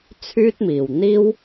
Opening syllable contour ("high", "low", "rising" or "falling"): high